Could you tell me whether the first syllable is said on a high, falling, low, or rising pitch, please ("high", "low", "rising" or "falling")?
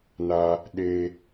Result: low